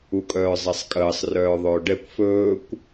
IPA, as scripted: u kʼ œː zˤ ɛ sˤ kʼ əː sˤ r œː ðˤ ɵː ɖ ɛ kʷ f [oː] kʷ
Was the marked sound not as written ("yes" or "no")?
yes